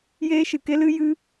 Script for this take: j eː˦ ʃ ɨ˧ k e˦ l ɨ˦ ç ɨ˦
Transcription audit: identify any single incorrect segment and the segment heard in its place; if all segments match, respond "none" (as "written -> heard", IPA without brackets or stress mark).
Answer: ç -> j